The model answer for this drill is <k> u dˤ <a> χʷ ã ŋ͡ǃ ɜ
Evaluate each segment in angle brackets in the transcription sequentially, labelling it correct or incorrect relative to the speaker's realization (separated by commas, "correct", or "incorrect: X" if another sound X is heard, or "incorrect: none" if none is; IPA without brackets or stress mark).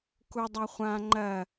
correct, correct